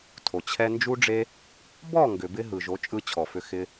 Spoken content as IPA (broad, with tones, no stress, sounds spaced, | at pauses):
tʰ o˨ t͡ɕʰ ɛ˦ n d͡ʒ u˦ ɖ͡ʐ e˦ | b ɔ˦˨ ŋ ɡ ʏ˨ b ɪ˧ ɦ ɯ˨ ʒ o˨˦ t͡ʃʼ ɯ˧ t͡ɕʰ ɔ˨ f ʏ˧ x ɪ˦